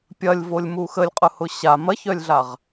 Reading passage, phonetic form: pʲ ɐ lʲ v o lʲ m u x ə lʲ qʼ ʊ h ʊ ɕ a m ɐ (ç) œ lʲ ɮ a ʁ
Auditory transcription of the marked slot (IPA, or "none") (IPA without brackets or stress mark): ç